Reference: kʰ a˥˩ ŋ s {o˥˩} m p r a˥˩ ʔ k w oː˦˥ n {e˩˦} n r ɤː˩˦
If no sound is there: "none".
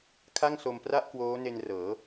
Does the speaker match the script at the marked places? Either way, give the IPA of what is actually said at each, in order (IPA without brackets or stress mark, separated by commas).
o˧, e˧